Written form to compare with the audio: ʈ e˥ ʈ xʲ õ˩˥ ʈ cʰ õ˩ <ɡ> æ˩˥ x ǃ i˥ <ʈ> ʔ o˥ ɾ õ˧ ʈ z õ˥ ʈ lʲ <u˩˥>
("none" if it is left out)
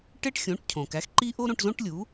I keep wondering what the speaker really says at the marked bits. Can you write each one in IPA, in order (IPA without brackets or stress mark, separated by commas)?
k, none, u˩˥